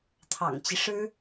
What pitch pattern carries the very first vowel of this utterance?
low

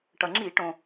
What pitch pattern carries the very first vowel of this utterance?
low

